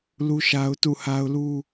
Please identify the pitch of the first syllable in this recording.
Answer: high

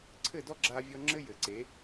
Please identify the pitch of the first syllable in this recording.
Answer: falling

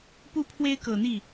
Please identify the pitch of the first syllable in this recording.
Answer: high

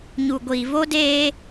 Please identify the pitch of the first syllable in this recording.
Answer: low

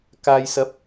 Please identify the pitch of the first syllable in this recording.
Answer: low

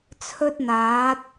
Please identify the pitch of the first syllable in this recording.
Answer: high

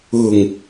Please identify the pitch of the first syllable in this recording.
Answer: low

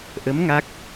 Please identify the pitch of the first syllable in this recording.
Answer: rising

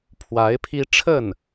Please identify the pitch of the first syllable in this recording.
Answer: rising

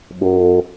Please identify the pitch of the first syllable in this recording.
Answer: high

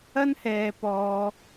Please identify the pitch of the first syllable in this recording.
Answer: high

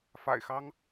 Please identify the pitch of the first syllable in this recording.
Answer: low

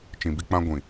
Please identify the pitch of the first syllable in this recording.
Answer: low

